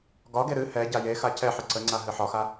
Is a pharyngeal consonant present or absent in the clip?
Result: present